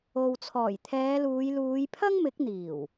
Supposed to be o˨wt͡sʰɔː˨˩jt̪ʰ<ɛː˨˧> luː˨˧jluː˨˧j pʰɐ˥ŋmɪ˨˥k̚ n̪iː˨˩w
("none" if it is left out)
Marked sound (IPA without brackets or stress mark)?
ɛː˨˧